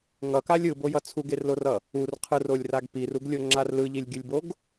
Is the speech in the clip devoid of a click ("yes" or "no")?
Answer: no